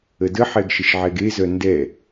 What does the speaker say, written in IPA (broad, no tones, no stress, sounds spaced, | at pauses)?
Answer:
ə d ə ħ ɛ ɡ ʃ ə ʃ ʕ ɛ ɡ e z œ n d ɛ